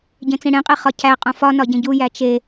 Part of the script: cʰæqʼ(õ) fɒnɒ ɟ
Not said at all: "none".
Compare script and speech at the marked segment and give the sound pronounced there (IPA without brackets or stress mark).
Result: õ